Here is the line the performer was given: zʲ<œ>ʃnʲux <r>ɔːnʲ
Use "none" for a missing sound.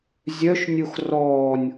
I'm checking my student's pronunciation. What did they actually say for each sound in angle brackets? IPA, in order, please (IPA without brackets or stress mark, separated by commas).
œ, r